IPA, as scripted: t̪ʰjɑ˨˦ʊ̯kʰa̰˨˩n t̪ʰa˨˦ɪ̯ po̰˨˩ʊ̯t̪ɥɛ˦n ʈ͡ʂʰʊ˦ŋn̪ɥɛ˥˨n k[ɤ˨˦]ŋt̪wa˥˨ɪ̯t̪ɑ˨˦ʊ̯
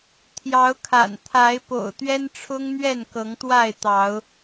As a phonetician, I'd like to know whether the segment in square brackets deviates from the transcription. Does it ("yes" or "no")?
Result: no